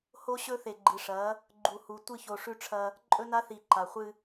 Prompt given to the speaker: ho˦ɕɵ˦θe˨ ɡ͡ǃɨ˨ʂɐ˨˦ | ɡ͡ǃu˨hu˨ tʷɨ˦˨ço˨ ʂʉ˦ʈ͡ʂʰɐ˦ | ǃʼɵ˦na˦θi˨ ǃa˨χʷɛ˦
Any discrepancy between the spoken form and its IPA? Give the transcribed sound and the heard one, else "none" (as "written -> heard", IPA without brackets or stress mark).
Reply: ɛ˦ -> ɨ˦